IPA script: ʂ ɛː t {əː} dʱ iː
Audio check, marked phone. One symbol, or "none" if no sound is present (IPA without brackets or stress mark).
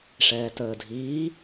əː